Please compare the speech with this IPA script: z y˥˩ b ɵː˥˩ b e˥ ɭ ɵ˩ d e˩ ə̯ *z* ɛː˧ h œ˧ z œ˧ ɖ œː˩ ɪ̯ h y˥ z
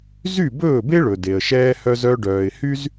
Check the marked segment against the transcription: incorrect: ʃ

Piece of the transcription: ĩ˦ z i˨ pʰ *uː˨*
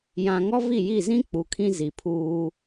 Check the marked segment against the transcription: incorrect: uː˦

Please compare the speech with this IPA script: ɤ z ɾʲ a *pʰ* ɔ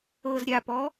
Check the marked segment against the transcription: incorrect: p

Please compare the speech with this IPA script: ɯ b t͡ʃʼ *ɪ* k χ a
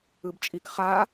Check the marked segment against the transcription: incorrect: i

